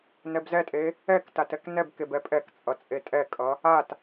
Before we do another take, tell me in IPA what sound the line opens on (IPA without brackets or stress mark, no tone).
n